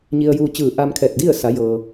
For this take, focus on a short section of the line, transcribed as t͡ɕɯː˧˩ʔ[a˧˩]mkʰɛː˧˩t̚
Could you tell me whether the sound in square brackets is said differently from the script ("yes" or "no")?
yes